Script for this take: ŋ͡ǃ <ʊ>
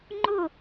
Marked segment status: correct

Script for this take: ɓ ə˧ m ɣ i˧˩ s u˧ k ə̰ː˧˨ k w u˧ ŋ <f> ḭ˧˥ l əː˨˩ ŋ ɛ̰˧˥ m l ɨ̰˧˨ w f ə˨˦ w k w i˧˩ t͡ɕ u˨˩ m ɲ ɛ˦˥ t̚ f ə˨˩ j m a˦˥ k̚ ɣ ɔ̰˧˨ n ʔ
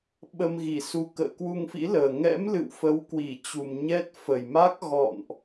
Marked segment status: correct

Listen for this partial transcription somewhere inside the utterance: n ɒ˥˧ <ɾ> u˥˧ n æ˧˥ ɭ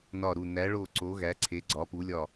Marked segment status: correct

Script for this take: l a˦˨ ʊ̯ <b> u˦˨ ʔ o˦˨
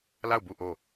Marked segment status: correct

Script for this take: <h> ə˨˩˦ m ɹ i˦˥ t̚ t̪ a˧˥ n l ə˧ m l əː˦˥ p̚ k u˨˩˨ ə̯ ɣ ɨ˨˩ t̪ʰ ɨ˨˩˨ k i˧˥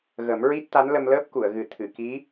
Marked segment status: incorrect: ɣ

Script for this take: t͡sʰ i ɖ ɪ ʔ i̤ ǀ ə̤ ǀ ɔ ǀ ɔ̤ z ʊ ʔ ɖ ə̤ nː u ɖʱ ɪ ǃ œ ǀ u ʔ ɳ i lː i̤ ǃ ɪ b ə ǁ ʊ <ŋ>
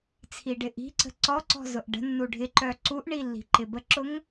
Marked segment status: correct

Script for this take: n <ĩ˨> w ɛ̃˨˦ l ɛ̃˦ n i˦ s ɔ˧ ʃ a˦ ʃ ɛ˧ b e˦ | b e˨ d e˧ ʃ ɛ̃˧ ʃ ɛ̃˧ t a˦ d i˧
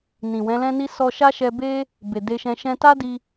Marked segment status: correct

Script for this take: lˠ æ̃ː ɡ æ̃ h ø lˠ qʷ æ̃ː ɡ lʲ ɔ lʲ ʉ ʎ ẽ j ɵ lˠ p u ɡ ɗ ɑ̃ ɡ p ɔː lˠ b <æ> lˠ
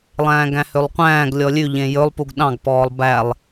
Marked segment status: correct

